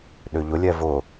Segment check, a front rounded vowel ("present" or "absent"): present